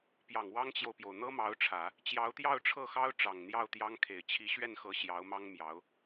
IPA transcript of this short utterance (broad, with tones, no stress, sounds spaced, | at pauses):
p j ɑ˨˩ ŋ w ɑ˥ ŋ t͡ɕ j o˨ ʊ̯ p j o˩ ʊ̯ n̪ ɤ˥ m ɑ˧˥ ʊ̯ ʈ͡ʂʰ ä˨˩˦ | t͡ɕ j ɑ˧˥ ʊ̯ t̪ j ɑ˥˧ ʊ̯ ʈ͡ʂʰ ɤ˥˩ x ɑ˥ ʊ̯ ʈ͡ʂ ɑ˨˩ ŋ n̪ j ɑ˥˩ ʊ̯ t̪ j ɑ˥ ŋ kʰ e˨˩ ɪ̯ t͡ɕʰ i˧˥ ɕ ɥ ɛ˥˩ n x ɤ˧˥ ɕ j ɑ˧˥ ʊ̯ m ɑ˥ ŋ m j ɑ˧˥ ʊ̯